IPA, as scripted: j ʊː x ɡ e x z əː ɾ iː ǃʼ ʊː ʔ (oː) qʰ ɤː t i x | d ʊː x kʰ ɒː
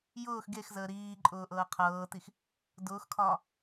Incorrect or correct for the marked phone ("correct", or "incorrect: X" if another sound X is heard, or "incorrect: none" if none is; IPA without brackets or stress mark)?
incorrect: ɤː